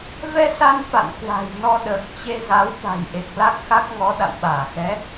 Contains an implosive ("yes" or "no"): yes